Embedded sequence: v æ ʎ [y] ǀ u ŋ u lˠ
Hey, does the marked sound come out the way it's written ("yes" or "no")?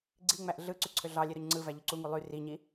no